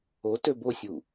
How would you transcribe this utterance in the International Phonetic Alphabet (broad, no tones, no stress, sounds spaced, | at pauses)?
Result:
o t ø b o sʲ u